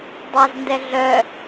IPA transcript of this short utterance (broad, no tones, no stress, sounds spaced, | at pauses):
dˤ a z n d ɛ ɮ œ